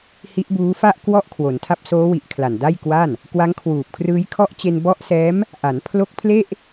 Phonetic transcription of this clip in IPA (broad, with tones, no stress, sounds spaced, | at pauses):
h i˦˥ ʔ b uː˦˥ f a˥˩ ʔ k w ɔ˦˥ ʔ kʰ w o˩˦ n tʰ a˥˩ p̚ s oː˦˥ w i˨˩ ʔ kʰ l a˨˩ n d a˥˩ j k w a˥˩ n | k w a˦˥ ŋ kʰ w uː˨˩ p̚ kʰ r ɯː˦˥ j kʰ ɔ˦˥ ʔ t͡ɕ e˧ n b ɔ˦˥ ʔ s ɛː˦˥ m | ʔ a˩˦ n pʰ l o˦˥ k̚ pʰ l e˥˩ ʔ